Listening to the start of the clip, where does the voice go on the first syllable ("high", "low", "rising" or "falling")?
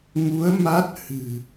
rising